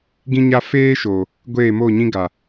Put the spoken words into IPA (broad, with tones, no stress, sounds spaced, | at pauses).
ɡ ĩ˦ ɲ a˦ f eː˦ ʃ o˨ | ɡʷ eː˦˨ m o˦˨ ɲ ĩ˦ ɡ a˨